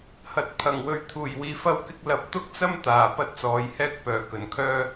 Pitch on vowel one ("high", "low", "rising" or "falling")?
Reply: low